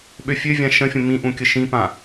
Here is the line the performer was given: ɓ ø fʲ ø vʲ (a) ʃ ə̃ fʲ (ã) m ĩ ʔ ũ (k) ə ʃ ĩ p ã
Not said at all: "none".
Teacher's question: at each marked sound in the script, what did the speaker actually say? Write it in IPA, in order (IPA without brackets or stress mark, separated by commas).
ã, ə̃, kʲ